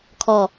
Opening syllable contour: falling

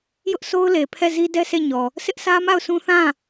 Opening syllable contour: high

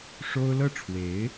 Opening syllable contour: high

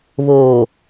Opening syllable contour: low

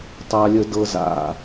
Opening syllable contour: high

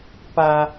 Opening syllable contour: high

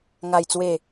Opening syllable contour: low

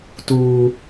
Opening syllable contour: high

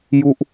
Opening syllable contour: falling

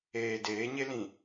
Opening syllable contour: low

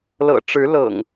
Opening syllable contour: low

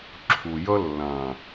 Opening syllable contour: low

